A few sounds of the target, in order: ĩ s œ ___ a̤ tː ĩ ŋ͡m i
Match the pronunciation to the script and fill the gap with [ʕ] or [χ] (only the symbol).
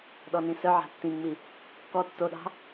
ʕ